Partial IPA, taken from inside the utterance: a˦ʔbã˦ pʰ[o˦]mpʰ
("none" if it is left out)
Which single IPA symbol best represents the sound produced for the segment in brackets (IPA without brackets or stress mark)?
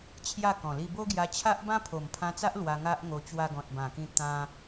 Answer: o˨˩